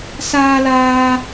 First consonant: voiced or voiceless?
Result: voiceless